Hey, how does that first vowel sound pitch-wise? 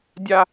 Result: high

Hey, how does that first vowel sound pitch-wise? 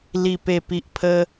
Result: low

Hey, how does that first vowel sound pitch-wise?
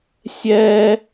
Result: high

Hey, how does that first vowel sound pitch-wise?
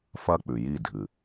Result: high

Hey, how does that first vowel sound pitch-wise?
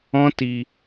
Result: high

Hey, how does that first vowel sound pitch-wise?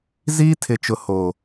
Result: high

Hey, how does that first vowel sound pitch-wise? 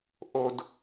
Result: low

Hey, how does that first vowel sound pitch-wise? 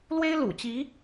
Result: high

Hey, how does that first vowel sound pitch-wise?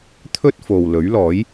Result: high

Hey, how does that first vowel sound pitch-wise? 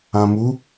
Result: low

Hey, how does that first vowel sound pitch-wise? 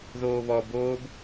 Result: high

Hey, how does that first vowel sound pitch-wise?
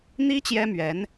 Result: high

